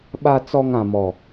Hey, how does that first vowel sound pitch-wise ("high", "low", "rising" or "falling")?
high